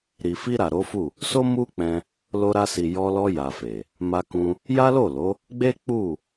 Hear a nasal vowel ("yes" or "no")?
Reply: yes